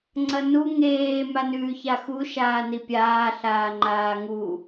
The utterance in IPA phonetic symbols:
ŋ͡ǀ ɐ n u ŋ eː m a n ʉː ç a x u ʃ aː n i pʲ aː ɬ aː ŋ͡ǃ aː ŋ u

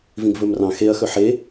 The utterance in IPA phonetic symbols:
v ĩ ɡ v ɵ m r ɑ̃ x e ɐ̯ x ɵ ħ e

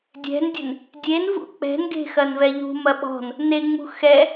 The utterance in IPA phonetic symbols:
dʲ ɛ̤ n dʲ ɘ n | dʲ e n v ṵ k͡p ɛ̤ n ɡ e̤ x ɐ n v ɛ ʎ ṳ m ɐ ɓ ɔ̤ n | n e ŋ͡m ṳ x ɛ

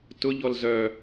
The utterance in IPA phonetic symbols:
t ʊ ʎ ɔ l z œ

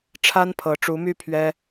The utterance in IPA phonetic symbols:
ʈ͡ʂʰ a˥ n pʰ ɤ˧˥ ʈ͡ʂ u˧˥ m y˥˩ pʰ ɥ ɛ˥

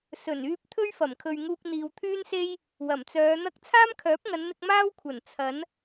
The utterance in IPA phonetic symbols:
s ɵ˨˩ n yː˧ p̚ t̪ʰ ɵ˥ ɥ f ɐ˨˩ m kʰ ɵ˨ ɥ ŋ uː˧ k̚ n̪ iː˨ w t̪ʰ yː˥ n s e˥ j | w ɐ˨˩ m t͡s œː˨˧ n̪ ɐ˥ k̚ t͡sʰ aː˥ m kʰ œː˨˥ p̚ ŋ ɐ˨˧ n n̪ ɪ˧ k̚ m aː˥ w kʷʰ ɐ˨˩ n t͡sʰ ɐ˨˥ n

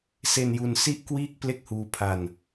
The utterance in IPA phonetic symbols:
s e˧ n j u˧ n s i˥˩ ʔ k w iː˥˩ k̚ p l e˥˩ k̚ h uː˧ pʰ a˧ n

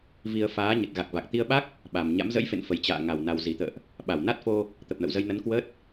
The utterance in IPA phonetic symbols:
v i˧ ə̯ f aː˨˦ ɲ ə˨˩ t̚ ɣ a˨˩ k̚ v a˨˩ k̚ t̪ i˧ ə̯ ɓ a˦˥ k̚ | ɓ a˨˩ m ɲ a̰˧˥ m z ə̰˧˥ j f ḛ˧˨ n f ə˨˩ j t͡ɕ a̰ː˧˨ ŋ a˨˩ w n a˨˩ w z i˧˩ t̪ ə̰ː˧˨ ʔ | ɓ a˧˩ w n a˦˥ t̚ f o˧ | t̪ ə˨˩ p̚ n ə̰˧˨ w z ə˧ j n ə˨˦ n k w ə˦˥ t̚

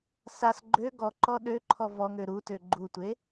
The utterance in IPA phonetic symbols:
s a s ɡ͡ǃ ø ɡ ɔ ǃ ɔ ɗ ø ǃʰ ɔ v ɔ ŋ ø ɾ u t ø ɡ͡ǃ u tʷ e

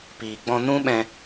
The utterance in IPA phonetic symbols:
p iː˨ ɡ͡b ɔ̃˧ n ũ˦ ɓ ɛ̃˧

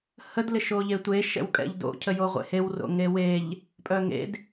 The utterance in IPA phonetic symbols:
h ə d l ɪ ʃ o ʎ e tʷ e ʃ ɛ̰ w kʼ ɛ̰ ʎ d o̰ cʰ ə j o ʁʷ ḛ h e w r o̰ ŋ e w e ʎ | pʼ œ ŋ ḛ d

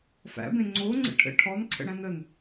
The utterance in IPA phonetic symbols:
f æ̰ b ẽ ŋ͡ǀ o ŋ͡ǀ ə̰ ʈʰ ə̰ ʈʰ ɔ n ǀʰ ə̰ ɽ æ̃ n ə n

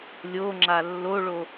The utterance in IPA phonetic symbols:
lʲ o ŋ͡ǁ a lː o ɭ o

